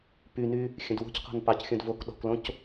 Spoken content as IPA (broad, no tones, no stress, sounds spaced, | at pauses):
p y n y | xʲ ə̃ d w o̤ c q ɔ̤ n p ɑ c xʲ õ d v o k ɗ ɔ̤ k l õ c